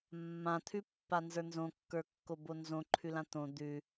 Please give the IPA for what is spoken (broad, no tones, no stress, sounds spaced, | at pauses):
mː ã t̪ʰ ʉ pː a n z ə˞ n z õ kː ə˞ kː o b o n z õ ǃʰ ʉ l ã t̪ õ d̪ ʉ